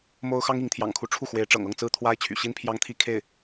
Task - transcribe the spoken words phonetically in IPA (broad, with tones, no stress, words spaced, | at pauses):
mo˥ʊ̯ xɑ˥ŋi˧˥ŋt̪ʰjɑ̰˨˩ŋkʰu˧˥ ʈ͡ʂʰu˥˩xwe˧˥ɪ̯ʈ͡ʂɤ̰˨˩ŋ ɤ˥˩ŋt͡sɹ̩˥t̪ʰwa˥ɪ̯ t͡ɕʰy̰˨˩ɕi˥npʰjɑ˥ŋt̪ʰi˥ kʰe˥˩ɪ̯